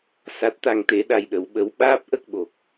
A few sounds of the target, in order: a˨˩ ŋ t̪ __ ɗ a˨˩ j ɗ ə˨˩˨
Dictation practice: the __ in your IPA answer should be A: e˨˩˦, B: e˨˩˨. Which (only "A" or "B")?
B